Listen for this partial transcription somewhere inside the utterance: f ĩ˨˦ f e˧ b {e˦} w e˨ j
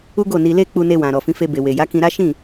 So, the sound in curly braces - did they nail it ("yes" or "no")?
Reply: no